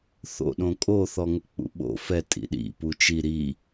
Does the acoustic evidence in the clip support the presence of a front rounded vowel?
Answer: no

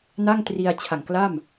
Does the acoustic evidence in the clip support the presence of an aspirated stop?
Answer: yes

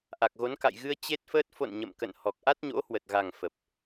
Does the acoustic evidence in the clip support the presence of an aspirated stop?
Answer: no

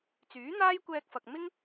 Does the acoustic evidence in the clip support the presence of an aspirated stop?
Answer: no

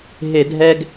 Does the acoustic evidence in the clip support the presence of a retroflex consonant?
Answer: no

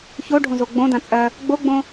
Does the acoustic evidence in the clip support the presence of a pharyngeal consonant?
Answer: no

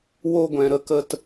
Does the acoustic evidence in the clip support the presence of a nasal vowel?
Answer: yes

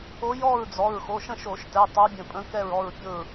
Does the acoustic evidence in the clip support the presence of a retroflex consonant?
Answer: no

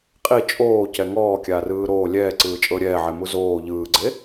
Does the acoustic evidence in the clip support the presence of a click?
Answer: yes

